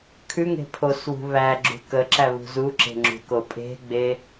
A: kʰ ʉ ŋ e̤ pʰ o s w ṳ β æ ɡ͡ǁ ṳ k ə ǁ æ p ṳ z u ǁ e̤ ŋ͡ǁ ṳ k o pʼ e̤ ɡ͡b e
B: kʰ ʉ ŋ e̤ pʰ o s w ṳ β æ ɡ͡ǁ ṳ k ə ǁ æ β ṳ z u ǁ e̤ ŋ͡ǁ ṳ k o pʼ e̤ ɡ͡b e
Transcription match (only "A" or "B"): B